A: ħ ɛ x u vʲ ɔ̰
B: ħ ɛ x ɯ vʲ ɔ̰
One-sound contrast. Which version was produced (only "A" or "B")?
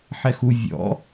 A